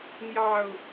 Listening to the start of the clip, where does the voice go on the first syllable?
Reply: low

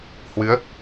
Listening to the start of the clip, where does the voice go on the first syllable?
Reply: rising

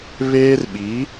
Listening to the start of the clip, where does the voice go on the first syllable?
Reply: high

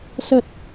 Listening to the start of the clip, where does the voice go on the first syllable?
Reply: low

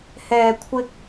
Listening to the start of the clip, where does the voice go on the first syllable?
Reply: low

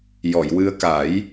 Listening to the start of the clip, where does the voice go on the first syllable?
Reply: low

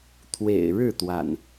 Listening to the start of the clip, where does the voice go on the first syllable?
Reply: low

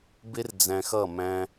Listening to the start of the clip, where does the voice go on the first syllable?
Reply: high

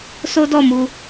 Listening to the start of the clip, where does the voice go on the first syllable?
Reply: high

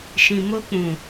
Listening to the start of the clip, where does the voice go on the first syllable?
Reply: low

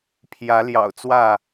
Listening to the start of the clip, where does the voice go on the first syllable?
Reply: rising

